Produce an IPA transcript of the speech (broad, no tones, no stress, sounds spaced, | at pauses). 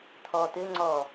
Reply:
t̪ʰ ɔ t̪ ɘ ŋ͡ǀ ɔ